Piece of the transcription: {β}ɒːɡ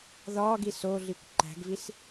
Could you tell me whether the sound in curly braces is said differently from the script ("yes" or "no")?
yes